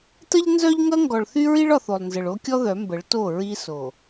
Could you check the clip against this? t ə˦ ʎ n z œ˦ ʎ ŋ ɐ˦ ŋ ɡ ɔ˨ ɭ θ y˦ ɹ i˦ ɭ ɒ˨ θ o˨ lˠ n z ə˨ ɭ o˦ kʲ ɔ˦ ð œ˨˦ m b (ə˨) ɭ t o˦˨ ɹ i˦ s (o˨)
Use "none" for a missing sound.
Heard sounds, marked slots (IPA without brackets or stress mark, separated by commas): ə˨˦, o˨